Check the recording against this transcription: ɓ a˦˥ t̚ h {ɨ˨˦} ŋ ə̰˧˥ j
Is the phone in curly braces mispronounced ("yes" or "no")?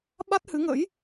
no